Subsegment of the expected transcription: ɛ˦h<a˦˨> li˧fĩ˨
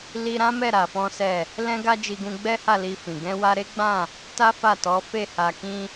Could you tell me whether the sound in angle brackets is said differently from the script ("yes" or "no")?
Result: no